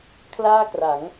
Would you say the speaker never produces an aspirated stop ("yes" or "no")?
no